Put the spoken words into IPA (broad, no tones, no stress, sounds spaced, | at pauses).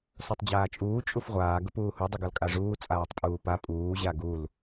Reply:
s ɔ tˤ d͡ʑ aː t͡ʃʼ uː t͡ʃʼ u f ʁʷ aː ɡ ʊ p uː h u dˤ u ɡ ɔ l kʼ a ʐ uː t͡sʼ aː tˤ pʼ uː p a pʼ uː ʑ a ɡ u l